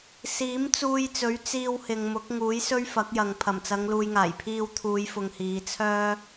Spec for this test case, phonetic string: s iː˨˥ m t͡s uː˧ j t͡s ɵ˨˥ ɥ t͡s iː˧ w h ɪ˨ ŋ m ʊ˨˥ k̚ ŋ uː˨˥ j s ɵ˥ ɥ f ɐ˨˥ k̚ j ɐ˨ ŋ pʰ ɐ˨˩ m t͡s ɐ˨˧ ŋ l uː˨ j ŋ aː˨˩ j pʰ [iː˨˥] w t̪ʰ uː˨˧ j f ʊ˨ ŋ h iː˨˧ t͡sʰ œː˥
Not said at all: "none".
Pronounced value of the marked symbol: iː˧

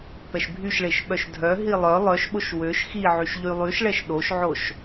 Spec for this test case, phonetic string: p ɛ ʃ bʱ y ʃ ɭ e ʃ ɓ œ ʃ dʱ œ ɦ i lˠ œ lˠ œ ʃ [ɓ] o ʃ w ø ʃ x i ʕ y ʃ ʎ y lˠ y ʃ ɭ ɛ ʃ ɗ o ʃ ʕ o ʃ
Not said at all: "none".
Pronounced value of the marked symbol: ɓ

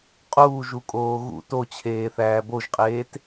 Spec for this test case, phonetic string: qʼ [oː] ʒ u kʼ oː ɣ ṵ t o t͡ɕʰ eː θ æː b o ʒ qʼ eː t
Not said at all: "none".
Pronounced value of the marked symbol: uː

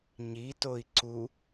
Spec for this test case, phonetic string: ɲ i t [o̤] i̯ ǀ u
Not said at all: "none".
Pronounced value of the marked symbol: o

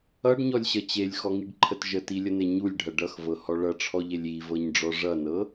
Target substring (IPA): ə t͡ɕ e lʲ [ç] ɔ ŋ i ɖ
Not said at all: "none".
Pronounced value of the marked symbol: x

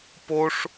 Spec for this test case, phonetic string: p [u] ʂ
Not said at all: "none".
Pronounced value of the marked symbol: o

